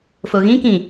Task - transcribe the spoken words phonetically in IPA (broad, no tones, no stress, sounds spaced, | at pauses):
f o ɣ ĩ k ĩ